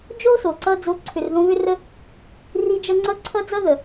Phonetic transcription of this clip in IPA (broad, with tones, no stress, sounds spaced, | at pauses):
d͡ʒ o˦ s o˨ ǀ ʌ˧ d͡z o˨˦ ǀʰ ʏ˨ r ð õ˧ β ʏ˦ r ə˦ | r i˧ d͡ʒ ʌ˧ ŋ͡ǀ ʌ˦ ǀʰ ʌ˧ d͡z ʌ˦ ð ə˨